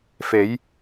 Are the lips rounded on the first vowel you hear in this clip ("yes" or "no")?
no